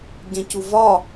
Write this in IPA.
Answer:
ɟ ɛ̃ c u v ɒ

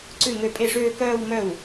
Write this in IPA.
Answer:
ǀ ʉ˥˩ ŋ ø˥˩ pʼ e˥˩ ʂ øː˥˧ k œː˥˧ w m œ˥˩ w

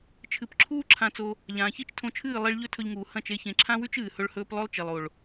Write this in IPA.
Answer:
t͡ʃʰ ɨ˨ p ǁʰ uː˦ ǁʰ ã˧ t͡s o˧ | ʎ ãː˨ ç i˦ t͡ʃ tʰ õ˧ t͡ʃʰ ɨː˦˨ lˠ i˧ ɭ ʎ ɵ˦ tʰ ɵ˧ ʎ ŋ uː˨ h ɐ̃˦˨ t͡ʃ e˧ ç ẽ˨ ǁʰ ã˦ w ʉ˦ t͡ʃ ɨː˨ h ɵ˦ ɭ h ɵː˦ p lˠ ɵ˦ lˠ t͡ʃ e˨ lˠ o˨ ɭ

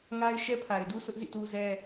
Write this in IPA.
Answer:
ŋ a˦ ɪ̯ ʃ ɛ˦ pʰ a˨ ɪ̯ d u˦ s ʊ˦ ʔ z ḭ˦˨ t u˦ z ɛ˦

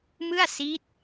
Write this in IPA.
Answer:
m ɯ˥˩ a̯ s i˦˥ t̚

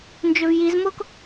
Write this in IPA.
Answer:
n d͡ʒ ø v j i z m o k

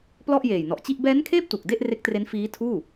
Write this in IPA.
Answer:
p l ɔ˥˩ ʔ j eː˨˩ j n ɔ˨˩ ʔ t͡ɕ i˥˩ ʔ b ɛː˦˥ n kʰ eː˥˩ p̚ t u˨˩ k̚ d e˥˩ ʔ r e˦˥ k̚ t r e˦˥ n f iː˦˥ tʰ uː˥˩

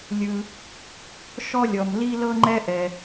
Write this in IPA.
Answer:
lʲ ɯ˩ | ʃ ɔ˥ lʲ ɔ˩ m l i˥ l ɤ˥ ŋ͡ǃ ɛ˥ ʔ ɛ˩

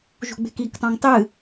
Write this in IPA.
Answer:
ʒ ṳ ɡ͡b e̤ k i k tˤ õ ŋ tˤ ɨ

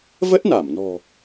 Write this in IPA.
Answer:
v ə˦˥ t̚ n a˧˩ m n ɔ̤˨˩

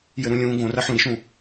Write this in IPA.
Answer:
j ɘ ɾ ũ lʲ ũː ɡ õ r ɐ ħ ũ ɾ i ʃ ũː

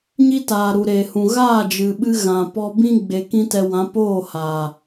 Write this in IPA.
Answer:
ɲ i˦ t aː˨ ɾ u˨ ɾ e˨ h ũ˨ ɣ aː˦˨ d͡ʒ ɨ˨ ɓ ɨ˧ ɣ ã˨ p ɔ˧ b ĩ˦ ɡ͡b e˧ k ĩ˦ t ɛ˧ w ã˨˦ p oː˦˨ h aː˨

